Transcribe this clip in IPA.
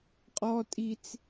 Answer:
qʼɔtʼit͡s

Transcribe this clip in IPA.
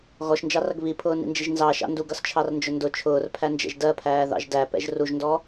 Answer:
ɣɔʃnd͡ʒɑrʌɡ βipʰʊːnḭnd͡ʒiʒ nzɑ ʃɑ̰nduɡ ʌst͡ʃʰɑrnd͡ʒʊndʊ t͡ʃʰʊːrpʰænd͡ʒɛ̰ʒ dɜpʰæːðɑ̰ʒ dæ pɛ̰ʒruʒndɔ

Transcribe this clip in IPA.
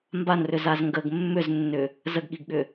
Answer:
mbanrʏzaz ŋɡəɡ mːʏznːʏ | zəɡɠiɡɠʏ

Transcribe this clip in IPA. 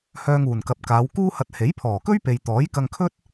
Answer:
hœː˧ŋuː˨˩nkɐ˨p̚ kaː˨˧wkuː˥hɐ˧t̚ he˨˥jpʰɔː˨˩kɵ˥ɥpe˨j t̪ɔː˨˥jkɐ˧ŋkʰɵ˥t̚

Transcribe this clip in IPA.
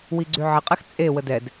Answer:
wiɡ͡ǀyʕəqʼɛx t͡sʼewə dɛd

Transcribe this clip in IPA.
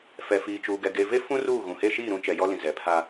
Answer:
fɛ˨fiː˨t͡ʃuː˨ɡɛ˨ ɡe˨ve˦fũ˦ ruː˦˨ɣũ˨he˦ ʃiː˦˨ɾũ˦ t͡ʃɛ˨jɔ˦lĩ˨ zɛ˨pʰa˦

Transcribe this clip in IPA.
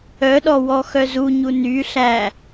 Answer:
œɗɔ wɔxœzuɲu ny ɬæ

